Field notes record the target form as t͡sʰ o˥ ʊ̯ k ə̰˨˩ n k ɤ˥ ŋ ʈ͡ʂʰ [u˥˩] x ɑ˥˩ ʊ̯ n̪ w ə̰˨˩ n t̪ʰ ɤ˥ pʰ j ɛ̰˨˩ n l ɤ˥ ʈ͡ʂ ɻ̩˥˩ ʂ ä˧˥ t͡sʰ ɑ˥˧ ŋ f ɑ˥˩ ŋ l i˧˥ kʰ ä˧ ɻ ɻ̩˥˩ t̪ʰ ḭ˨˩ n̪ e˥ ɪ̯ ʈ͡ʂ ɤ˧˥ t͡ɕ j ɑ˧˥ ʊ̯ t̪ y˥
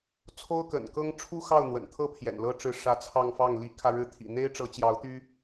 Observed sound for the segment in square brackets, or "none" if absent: u˥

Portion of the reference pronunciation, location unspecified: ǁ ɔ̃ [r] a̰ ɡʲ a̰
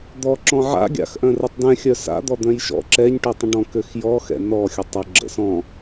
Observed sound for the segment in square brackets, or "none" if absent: ʕ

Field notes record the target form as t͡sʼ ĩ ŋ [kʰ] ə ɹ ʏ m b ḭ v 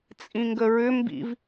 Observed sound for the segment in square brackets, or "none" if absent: ɡ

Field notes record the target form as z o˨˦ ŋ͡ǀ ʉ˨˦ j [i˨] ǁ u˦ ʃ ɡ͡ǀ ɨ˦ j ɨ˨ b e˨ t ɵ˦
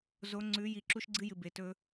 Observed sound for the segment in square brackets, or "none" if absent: i˨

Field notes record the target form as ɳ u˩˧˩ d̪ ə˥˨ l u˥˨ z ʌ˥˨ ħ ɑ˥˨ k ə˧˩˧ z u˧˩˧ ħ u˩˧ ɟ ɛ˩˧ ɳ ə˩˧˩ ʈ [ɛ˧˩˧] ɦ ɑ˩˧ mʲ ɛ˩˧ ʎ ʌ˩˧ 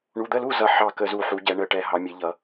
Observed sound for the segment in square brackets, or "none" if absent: ɛ˧˩˧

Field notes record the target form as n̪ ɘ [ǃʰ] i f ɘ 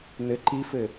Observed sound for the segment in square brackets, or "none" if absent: ǃ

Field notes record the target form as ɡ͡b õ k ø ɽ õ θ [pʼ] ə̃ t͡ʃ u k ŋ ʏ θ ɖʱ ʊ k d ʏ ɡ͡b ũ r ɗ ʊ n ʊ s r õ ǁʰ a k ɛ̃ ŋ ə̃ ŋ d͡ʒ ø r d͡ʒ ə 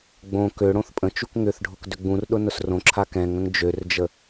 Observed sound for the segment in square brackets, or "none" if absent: pʼ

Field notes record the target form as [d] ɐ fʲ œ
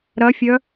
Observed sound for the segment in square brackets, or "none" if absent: ɾ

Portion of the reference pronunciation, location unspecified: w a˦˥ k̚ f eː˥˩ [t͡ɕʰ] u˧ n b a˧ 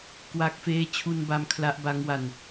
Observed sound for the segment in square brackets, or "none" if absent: t͡ɕʰ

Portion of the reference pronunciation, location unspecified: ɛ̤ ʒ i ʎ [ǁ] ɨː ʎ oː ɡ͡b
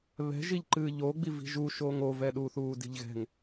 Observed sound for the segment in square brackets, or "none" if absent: ǃ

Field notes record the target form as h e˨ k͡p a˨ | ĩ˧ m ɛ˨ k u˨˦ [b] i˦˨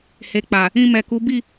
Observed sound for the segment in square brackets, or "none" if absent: b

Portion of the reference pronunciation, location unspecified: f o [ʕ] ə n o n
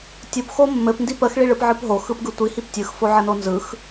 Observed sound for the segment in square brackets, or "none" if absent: ʕ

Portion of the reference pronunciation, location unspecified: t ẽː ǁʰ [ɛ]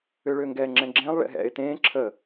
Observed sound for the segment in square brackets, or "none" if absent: ə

